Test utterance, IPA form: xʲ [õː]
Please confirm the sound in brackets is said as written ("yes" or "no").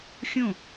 no